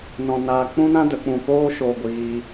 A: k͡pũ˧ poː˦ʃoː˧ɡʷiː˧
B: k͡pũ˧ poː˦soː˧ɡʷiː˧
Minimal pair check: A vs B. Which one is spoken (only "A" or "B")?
A